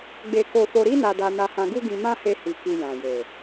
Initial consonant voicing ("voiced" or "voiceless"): voiced